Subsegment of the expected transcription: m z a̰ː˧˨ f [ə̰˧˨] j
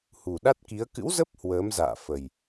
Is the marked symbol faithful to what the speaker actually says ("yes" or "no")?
no